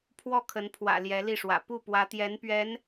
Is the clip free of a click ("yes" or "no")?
yes